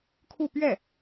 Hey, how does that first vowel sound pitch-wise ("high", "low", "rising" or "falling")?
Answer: falling